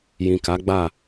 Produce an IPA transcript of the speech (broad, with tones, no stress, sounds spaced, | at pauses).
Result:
j ĩ˨ k a˨˦ ɡ͡b a˦˨